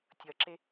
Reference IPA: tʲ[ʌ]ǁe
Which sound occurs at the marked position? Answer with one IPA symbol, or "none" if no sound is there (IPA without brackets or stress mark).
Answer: ʌ